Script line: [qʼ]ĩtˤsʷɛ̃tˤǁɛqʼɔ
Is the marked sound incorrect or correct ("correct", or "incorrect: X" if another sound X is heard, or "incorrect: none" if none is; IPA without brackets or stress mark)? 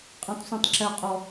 correct